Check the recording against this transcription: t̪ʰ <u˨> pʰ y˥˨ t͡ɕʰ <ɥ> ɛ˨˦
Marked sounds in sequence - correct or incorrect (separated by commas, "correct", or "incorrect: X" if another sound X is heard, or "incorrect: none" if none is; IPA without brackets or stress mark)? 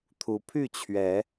incorrect: u˨˦, correct